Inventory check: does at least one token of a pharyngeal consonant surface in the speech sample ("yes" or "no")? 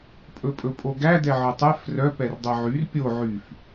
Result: yes